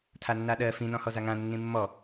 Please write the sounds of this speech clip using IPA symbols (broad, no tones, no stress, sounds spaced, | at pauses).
tʰ a nː a ɗ ɜ f ĩ n ɔ̃ h ɔ z a ŋ ã nː ĩ mː ɔ